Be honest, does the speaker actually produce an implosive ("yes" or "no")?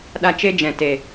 yes